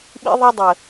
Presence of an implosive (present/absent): present